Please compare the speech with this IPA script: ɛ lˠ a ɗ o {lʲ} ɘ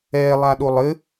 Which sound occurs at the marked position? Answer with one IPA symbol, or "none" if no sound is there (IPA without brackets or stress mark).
lˠ